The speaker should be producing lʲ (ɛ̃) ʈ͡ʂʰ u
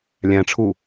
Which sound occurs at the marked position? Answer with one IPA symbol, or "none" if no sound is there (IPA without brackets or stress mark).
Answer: æ̃